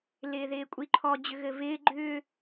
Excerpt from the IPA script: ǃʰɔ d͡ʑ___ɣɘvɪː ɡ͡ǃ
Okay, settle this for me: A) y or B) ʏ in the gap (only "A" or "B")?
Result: B